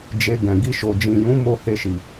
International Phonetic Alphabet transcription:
d͡ʒ e˧ ɡ ɛ̃˨ ɡ i˧ ʃ o˨ d͡ʒ ĩ˨ j ũ˨˦ m o˦ h e˧ ʃ i˨

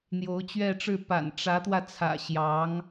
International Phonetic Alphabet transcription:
n̪ j o˧˥ ʊ̯ t͡ɕ ɥ ɛ˥˧ ʈ͡ʂ ɻ̩˥˩ p a̰˨˩ n ʈ͡ʂ ä˧˥ t̪ w ä˧ t͡sʰ ä̰˨˩ ɕ j ɑ˧˥ ŋ

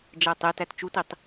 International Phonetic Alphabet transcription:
d͡ʒ æ tˤ e t æ t t͡ʃ u t i tˤ

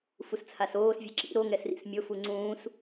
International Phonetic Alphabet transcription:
f u s t͡sʰ a s oː s vʲ ɛ ǁ ḭ ɾ o ŋ ɛ s r ḭ s mʲ o f u ŋ͡ǀ ũː s

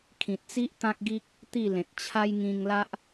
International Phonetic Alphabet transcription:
kʰ ĩ˨ t̚ t͡s i˦ ʔ t̪ ã˦ k̚ ɡ i˦ k̚ | t̪ i˥˧ l ẽ˨ t̚ t͡ɕʰ a˦ j ŋ ĩ˧ ŋ l a˦ ʔ

